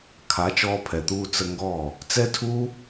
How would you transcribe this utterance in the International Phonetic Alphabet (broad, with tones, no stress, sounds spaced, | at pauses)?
kʰ a˨˦ t͡ʃ ɔː˧ pʰ ɛ˨ t̪ uː˧ t͡s ə˧ ŋ ɡ ɔ˦˨ | t͡s ɛ˦ tʰ u˦